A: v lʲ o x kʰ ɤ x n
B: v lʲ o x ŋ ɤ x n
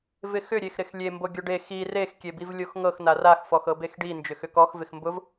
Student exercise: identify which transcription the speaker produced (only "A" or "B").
B